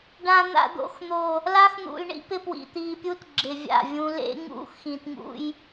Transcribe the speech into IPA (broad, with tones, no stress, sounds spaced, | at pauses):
ɖ ã˨ n̪ a̰˨ d̪ o̰˨ x n̪ o˨ | l a˦ x n̪ ṵ˨ l ɳ ḭ˦ p ɪ˦ p w ḭ˨ t̪ iː˨ pʲ u˦ t ɡ͡ǁ ɪ˨ vʲ a̰˦˨ vʲ ũ˦ l ḛ˦ ŋ ṵ˦ x ĩ˨ t ŋ ṵ˦ j